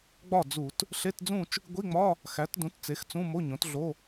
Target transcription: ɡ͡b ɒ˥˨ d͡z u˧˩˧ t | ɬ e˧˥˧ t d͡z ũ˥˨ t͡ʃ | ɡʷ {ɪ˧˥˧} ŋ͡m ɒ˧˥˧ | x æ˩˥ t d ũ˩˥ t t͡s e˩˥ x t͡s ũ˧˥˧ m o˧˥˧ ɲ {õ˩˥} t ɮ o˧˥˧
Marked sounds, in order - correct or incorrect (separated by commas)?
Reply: incorrect, correct